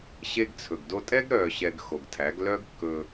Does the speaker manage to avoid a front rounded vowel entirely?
no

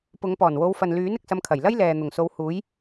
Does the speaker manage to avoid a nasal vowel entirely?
yes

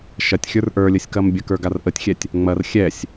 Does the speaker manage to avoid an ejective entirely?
yes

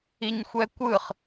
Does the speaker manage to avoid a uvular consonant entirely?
no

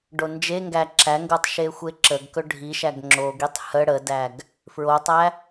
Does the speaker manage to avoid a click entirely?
no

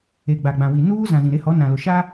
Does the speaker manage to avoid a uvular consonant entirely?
yes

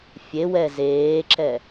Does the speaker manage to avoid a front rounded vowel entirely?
yes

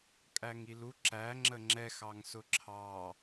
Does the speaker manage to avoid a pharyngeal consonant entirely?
yes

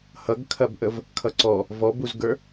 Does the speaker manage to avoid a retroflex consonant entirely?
yes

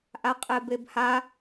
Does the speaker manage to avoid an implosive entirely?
yes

